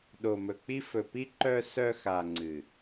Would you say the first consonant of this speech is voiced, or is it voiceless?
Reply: voiced